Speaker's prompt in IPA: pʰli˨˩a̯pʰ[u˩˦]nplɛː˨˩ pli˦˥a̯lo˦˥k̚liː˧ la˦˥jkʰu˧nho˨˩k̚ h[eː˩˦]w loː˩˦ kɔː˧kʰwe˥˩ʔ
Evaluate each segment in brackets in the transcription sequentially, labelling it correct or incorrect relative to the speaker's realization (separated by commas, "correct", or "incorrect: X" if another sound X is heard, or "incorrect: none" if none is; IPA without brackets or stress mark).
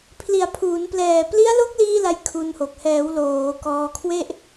incorrect: uː˩˦, incorrect: ɛː˩˦